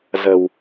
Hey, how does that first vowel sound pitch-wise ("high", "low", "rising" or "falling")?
low